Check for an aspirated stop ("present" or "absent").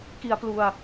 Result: absent